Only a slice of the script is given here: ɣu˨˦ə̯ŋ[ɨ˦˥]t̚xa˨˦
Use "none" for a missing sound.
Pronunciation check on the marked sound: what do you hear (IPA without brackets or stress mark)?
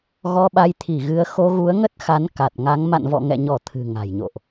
ə˦˥